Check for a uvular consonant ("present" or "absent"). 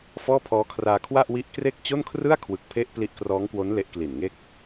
absent